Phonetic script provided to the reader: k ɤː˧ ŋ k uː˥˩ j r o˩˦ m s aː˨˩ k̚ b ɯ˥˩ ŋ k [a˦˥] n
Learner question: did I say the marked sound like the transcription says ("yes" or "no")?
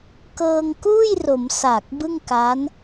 yes